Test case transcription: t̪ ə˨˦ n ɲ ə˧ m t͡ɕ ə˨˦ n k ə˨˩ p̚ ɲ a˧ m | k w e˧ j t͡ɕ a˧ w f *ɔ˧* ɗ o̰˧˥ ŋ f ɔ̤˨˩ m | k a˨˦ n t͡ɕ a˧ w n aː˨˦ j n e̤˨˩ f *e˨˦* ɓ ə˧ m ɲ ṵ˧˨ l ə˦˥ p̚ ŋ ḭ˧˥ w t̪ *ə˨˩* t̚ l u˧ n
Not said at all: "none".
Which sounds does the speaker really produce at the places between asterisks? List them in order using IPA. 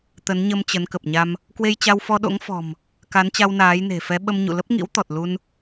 ɔ˧, ɛ˨˦, ɔ˨˩

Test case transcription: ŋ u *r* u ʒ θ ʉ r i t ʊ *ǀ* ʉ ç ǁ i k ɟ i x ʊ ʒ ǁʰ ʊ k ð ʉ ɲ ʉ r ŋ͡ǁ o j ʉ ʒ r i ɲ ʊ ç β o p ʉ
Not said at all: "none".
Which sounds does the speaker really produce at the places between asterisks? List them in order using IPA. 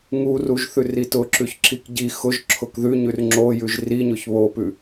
r, ǁ

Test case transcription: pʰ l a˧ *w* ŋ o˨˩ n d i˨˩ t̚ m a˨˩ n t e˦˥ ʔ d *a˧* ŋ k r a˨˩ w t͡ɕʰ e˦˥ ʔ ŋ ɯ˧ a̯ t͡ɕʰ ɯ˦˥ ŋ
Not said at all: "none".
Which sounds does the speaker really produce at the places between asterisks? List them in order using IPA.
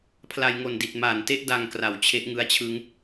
j, a˧

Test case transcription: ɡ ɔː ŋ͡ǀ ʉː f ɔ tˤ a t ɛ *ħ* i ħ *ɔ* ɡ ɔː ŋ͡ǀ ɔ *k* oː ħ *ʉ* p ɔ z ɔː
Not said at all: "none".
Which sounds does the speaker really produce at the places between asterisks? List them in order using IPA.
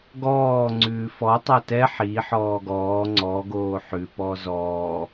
ħ, ɔː, ɡ, ʉ

